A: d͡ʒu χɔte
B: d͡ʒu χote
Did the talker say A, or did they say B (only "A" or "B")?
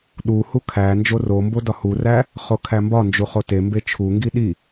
B